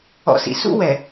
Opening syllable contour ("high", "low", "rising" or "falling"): low